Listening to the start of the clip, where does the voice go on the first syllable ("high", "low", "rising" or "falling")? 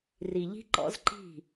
low